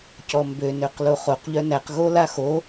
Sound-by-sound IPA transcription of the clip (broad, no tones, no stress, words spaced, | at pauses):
cɔmbø nøqloχoq ʎœnæq ɣolaxo